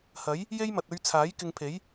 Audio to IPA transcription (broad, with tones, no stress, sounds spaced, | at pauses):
h ɐ˨˥ j | j e˥ j m ɐ˨ t̚ ɵ˧ ɥ t͡sʰ aː˨˥ j k ɪ˧ ŋ pʰ e˨˥ j